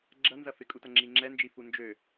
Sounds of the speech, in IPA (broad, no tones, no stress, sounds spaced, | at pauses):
ɡ͡ǁ ɐ n z ɐ f ɪ kʼ u t ɐ ŋ͡ǁ i ŋ͡ǁ ɛ n d͡ʒ i f u n d͡ʒ ø